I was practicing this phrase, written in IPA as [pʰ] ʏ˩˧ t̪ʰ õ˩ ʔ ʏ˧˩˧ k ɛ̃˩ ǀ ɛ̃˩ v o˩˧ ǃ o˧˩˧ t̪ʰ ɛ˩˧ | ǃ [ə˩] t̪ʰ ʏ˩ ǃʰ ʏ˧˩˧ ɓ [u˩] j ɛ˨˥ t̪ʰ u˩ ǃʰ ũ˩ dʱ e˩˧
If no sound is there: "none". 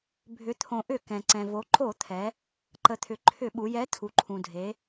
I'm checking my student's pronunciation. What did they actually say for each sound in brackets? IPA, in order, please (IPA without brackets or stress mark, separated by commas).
bʱ, ə˩, u˩˧